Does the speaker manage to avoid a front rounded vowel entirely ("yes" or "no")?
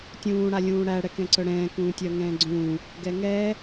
no